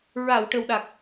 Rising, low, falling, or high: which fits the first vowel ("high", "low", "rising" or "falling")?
low